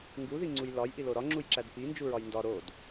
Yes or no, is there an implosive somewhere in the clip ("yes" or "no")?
no